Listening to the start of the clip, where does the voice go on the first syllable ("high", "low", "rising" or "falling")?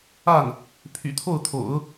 falling